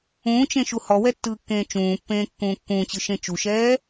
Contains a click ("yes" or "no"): no